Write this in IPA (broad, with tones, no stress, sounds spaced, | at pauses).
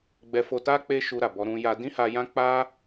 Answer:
ɡ͡b ɛ˧ f o˧ t a˦ k͡p e˦ ʃ u˧ ɾ a˨ b ɔ˧ ɾ ũ˧ j a˧ d ĩ˦ h a˧ j ã˦ k͡p a˦